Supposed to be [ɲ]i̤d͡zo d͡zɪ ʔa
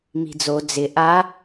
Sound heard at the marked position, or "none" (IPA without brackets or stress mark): m